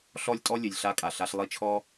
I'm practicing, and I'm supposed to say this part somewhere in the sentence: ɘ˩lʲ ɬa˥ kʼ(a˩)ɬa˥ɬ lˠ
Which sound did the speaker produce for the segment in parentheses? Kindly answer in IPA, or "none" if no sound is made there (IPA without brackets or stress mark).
a˩